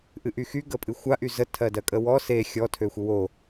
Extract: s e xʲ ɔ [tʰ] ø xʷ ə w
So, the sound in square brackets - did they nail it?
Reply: yes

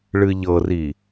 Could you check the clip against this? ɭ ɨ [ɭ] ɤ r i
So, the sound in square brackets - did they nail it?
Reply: no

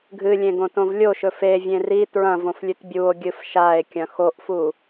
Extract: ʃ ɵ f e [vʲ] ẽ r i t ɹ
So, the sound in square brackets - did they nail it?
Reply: yes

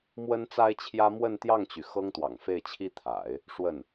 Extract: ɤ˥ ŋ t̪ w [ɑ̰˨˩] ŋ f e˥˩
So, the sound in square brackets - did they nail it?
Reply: yes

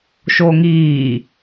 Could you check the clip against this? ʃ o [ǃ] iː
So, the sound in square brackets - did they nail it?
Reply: no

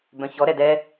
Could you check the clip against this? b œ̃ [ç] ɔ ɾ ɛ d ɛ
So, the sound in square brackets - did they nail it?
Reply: yes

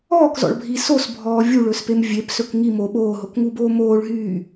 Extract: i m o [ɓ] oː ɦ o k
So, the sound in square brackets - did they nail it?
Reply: yes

